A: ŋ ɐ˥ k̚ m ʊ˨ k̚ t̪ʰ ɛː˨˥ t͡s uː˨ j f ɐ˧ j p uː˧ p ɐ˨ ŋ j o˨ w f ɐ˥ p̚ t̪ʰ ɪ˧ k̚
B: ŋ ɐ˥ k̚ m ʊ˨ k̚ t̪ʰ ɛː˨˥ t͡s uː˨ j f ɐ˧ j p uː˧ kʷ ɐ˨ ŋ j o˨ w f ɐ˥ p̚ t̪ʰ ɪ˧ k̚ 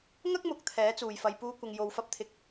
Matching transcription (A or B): B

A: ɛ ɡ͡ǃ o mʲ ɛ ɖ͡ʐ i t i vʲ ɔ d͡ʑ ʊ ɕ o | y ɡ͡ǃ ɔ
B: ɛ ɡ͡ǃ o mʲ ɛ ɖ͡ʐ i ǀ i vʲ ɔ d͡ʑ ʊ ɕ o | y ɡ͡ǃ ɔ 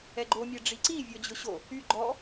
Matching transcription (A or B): B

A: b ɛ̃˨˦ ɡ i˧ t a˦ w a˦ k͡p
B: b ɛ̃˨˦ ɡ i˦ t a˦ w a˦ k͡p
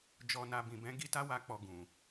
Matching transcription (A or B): B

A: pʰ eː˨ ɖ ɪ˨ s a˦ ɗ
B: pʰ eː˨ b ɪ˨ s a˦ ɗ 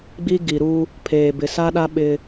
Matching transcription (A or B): B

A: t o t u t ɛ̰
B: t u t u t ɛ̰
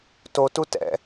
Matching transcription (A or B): A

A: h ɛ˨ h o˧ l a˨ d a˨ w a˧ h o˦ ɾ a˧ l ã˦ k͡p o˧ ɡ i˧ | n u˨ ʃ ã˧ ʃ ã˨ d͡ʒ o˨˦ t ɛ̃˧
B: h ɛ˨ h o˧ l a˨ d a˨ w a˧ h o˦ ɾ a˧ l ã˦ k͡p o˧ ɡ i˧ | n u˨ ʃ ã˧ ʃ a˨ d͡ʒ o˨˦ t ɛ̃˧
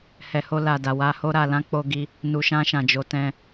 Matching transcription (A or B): A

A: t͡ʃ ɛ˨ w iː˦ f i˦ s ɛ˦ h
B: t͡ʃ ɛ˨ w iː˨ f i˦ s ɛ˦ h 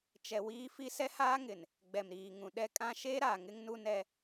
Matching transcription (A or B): A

